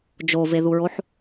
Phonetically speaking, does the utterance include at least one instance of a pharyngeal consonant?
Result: yes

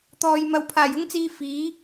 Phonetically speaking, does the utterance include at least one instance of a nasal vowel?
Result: no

